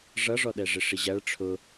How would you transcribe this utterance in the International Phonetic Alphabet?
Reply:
ʐ ʌ ʐ ɔ ɗ ɛ ʐ ɪ ʂ i ʑ æ ɭ ʈ͡ʂʰ ʊ

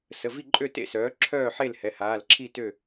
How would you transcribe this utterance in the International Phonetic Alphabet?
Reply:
s ə˩˧˩ v i˥˨ ǃʼ ø˥˨ t ḛ˥˨ s œː˩˥ ǁʰ œː˥˨ ħ e˥˨ l h ɛ˩˧˩ h aː˩˧˩ l ǁʰ i˥˨ t ø˥˨

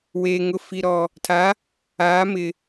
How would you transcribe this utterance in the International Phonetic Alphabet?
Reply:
w eː˨ ŋ ʊ˨ f i˨ ɾ ɔ˨ | tʰ a˨˦ | aː˨˦ m ɪ˨

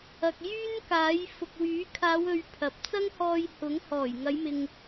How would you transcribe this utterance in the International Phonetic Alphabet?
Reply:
ɐ˨ k̚ j yː˥ n k aː˨˥ j f ʊ˨ k̚ w yː˨˥ kʰ aː˨˧ w ɵ˨ ɥ pʰ ɐ˨ p̚ t͡s ɐ˥ ŋ h ɔː˧ j h ʊ˨˥ ŋ h ɔː˨˩ j ŋ ɐ˨˧ j m ɪ˨ ŋ

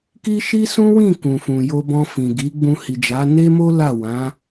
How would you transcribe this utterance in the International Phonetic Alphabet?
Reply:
k i˦ ʃ i˦ s ũ˦ w ĩ˦˨ k ũ˨ f ũ˨ j o˧ b ɔ̃˧ f ĩ˨ ɡ i˨˦ ɡ͡b ũ˧ h i˨ d͡ʒ a˨˦ n e˦ m o˦ l a˦˨ w ã˨˦

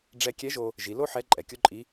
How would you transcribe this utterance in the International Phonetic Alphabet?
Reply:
ɖ͡ʐ ɛ˧ kʲ ɛ˧˥ ʒ o˧ | ʒ i˩˧ l o˥ ħ ɛ˧˥ ǃʼ ɛ˩ kʲ o˥ ǃʼ i˧˥

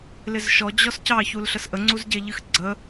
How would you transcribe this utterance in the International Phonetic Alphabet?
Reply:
l ɪ z ʃ ɔ d͡ʑ ɔ s c ɑ ç u l ɬ ə s ʔ ə ŋ͡ǀ u z ɟ ɛ ʎ ɨ x ɡ͡ǀ ə

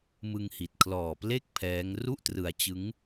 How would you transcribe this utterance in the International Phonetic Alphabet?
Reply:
m ɯ˧ ŋ h i˨˩ t̚ kʰ l ɔː˨˩ p l e˥˩ k̚ pʰ ɛː˦˥ ŋ r u˥˩ ʔ t r ɯ˧ a̯ t͡ɕ ɯ˦˥ ŋ

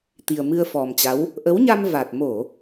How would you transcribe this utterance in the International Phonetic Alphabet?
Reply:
t̪ i˨˩ ə̯ m ɨ˧ ə̯ f ɔ˨˩ m t͡ɕ a˨˦ w | ʔ ə˨˦ w ɲ a˧ m v a˨˩ t̚ m o˧˩˨

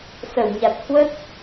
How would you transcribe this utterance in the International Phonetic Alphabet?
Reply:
s ə˧˩ w ɲ a˨˩ t̚ h w ə˦˥ t̚

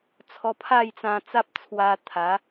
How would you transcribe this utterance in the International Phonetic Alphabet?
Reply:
t͡sʰ ɔ˧ pʰ a˥˧ j t͡s ã˧ t͡s a˦ p̚ t͡sʰ w a˧ t̪ʰ a˨˦

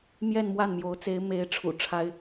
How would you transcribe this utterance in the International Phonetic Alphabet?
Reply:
m j ɛ˥˧ n m w a˥˩ n m j o˧˥ ʊ̯ t͡s e˧˥ ɪ̯ m e˧˥ ɪ̯ ʈ͡ʂʰ ṵ˨˩ ʈ͡ʂʰ a˥ ɪ̯

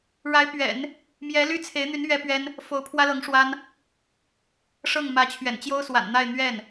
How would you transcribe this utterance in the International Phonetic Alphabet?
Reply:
ɻ a˧˥ ɪ̯ p ɥ ɛ̰˨˩˦ n | m j ɛ˧˥ l y˥ t͡sʰ e˧˥ ɪ̯ n̪ y˧˥ n ɥ ɛ˥ p ɥ ɛ˥ n | f o˧˥ ʊ̯ pʰ w ä˥ l ɤ˧˥ ŋ ʂ w a˥ n | ʂ ɤ˥˩ ŋ m ä˧˥ t͡ɕʰ ɥ ɛ̰˨˩ n t͡ɕ j o˥ ʊ̯ s w a̰˨˩ n n̪ a˥˧ ɪ̯ n̪ ɥ ɛ˥˩ n

